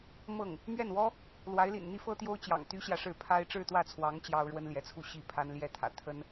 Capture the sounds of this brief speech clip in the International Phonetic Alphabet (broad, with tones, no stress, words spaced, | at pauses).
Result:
mɤ˥˩ŋ | mɥɛ˥˩nwɔ˥ | lwa˧˥ɪ̯lḭ˨˩n n̪i˥fɤ˥t̪jo˥ʊ̯t͡ɕjɑ̰˨˩ŋ t̪y˥ɕjä˨ʂɻ̩˥˩ pʰa˥ɪ̯ ʈ͡ʂɻ̩˥˧t̪wä˥˩t͡sʰwɑ˧˥ŋ t͡ɕjɑ˥ʊ̯ɻwə˥nljɛ˧˥t͡sʰu˥˧ ɕi˥˩pʰa˥nljɛ˥˩t̪ʰä̰˨˩ t̪ʰə˥n